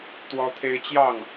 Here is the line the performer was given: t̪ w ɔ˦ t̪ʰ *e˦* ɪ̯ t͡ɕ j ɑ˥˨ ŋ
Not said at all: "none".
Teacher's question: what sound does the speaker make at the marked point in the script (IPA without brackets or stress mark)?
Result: e˦